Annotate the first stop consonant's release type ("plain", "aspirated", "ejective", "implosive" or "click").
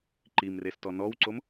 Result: click